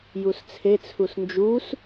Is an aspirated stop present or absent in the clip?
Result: present